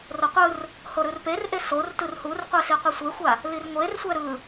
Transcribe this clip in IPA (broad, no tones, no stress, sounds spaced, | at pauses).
r o qʷ ɯ r | h o ɾ ɯ r p e r ʔ e s o r t ɯ r h u r qʷ e s i qʷ ɛ sʷ e xʷ a | l i r ŋʷ e r sʷ ɛ ɾ ɯ